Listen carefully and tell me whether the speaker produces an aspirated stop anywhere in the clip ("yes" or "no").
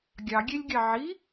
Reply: no